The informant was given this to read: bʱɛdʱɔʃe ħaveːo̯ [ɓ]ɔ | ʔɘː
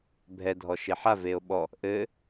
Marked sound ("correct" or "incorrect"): correct